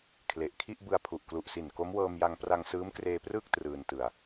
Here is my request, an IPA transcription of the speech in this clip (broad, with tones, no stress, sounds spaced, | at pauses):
kʰ l e˨˩ ʔ kʰ i˥˩ ʔ b ɯ˧ a̯ pʰ u˨˩ ʔ k l u˨˩ ʔ s i˨˩ n k o˦˥ m w ɤː˧ m j a˧ ŋ p r a˧ ŋ s ɯː˦˥ m k r eː˧ p r ɯː˥˩ k̚ t r ɯː˧ n t ɯ˧ a̯